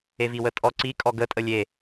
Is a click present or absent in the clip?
present